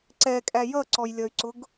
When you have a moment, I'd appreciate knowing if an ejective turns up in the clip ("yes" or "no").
yes